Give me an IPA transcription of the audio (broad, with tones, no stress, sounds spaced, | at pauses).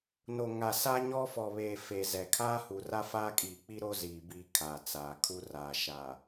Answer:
n o˨ ŋ a˨ s a˦ ɲ ɔ˦ f ɔ˨ β eː˨ f e˨ z ɛ˨ kʰ aː˦ h u˨ r a˦ f aː˦ kʼ iː˨ k͡p i˦ ɾ o˦ z iː˨ b iː˨ kʰ a˨ t͡s aː˨ kʰ u˦ r a˨ ʃ a˨